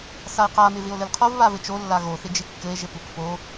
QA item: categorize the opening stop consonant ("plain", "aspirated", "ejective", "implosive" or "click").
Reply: plain